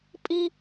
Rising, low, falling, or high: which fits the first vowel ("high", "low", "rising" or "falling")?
high